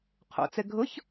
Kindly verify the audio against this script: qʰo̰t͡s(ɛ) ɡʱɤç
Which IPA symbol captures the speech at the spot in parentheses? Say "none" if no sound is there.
ɛ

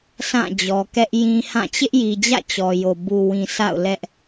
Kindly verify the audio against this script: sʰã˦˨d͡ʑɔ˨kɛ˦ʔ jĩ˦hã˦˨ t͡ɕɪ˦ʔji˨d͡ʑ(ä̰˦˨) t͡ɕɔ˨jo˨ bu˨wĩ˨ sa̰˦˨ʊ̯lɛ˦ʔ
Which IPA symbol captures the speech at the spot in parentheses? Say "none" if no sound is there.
ä̰˦˨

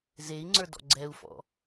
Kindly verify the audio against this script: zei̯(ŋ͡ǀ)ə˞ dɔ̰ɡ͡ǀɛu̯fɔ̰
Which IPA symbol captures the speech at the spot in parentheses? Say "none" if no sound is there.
ŋ͡ǀ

